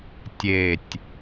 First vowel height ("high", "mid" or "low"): mid